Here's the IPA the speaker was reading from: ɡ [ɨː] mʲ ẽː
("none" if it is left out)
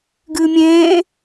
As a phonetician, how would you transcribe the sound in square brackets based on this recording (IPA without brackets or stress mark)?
ɨː